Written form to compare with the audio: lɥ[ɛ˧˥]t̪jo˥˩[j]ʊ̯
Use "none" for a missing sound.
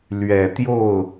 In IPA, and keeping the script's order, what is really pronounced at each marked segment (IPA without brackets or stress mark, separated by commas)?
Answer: ɛ˨˩, none